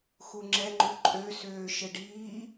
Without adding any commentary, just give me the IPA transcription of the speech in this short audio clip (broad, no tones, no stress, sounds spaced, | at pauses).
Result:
x u ŋ͡ǁ ɛ ŋ͡ǃ u ǃʼ ø s øː ʃ ɘ ɖ iː